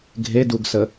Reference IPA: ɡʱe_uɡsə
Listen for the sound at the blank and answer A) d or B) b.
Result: A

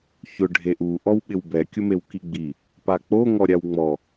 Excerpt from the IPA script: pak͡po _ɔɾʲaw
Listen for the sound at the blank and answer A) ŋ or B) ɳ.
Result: A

